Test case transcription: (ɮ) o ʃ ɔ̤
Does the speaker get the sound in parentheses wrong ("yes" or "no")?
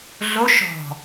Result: no